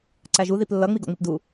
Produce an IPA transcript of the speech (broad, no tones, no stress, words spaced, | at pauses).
ǀæʒu ðiplːʌ ŋ͡miɡɔ̰ŋ͡mipdu